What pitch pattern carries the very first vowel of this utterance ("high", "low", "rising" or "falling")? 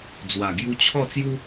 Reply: low